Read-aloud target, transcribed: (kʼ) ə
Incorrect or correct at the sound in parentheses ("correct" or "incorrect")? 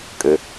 correct